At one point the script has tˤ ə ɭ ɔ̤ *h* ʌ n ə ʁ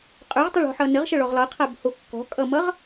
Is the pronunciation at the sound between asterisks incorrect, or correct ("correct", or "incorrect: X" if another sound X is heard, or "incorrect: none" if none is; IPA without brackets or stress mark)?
incorrect: ħ